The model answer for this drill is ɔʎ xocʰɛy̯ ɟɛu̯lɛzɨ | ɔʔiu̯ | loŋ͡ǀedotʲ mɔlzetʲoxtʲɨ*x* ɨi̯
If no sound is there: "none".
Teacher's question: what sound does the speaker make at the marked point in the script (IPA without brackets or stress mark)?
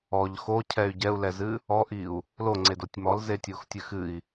x